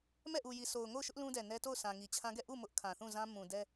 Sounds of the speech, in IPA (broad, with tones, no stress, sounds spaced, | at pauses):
m ɛ˦˨ ʔ u˨ j i˨ sʰ o˨ ʊ̯ ŋ o˦˨ ʊ̯ ʃ ʊ˦ ʔ l ũ˦ d ɛ˨ n ɛ˦ t o˦˨ ʊ̯ s ã˨ ŋ i˨ t͡ɕʰ ã˦ ɡ ɛ˦˨ ʔ u˦˨ m ʊ˦ ʔ kʰ ã˨ θ ũ˦˨ z ã˦ m ũ˨ d ɛ˦